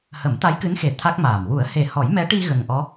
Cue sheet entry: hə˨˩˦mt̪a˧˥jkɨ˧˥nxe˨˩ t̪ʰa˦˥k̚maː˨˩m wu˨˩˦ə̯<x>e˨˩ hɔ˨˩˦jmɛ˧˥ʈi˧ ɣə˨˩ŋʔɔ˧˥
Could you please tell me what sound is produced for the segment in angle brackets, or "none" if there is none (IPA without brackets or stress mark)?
h